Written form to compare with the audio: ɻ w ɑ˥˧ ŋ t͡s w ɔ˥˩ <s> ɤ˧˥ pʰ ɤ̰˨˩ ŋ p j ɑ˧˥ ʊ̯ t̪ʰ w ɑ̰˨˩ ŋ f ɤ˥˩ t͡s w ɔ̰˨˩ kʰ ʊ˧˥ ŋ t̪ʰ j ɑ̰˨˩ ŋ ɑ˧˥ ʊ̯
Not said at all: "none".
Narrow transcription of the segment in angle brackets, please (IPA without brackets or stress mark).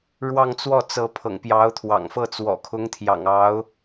t͡s